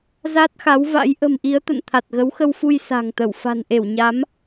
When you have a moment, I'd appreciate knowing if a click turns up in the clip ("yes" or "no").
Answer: no